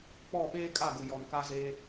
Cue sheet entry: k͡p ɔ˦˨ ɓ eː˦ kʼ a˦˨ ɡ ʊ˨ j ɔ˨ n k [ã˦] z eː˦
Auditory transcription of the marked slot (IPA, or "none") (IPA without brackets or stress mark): a˦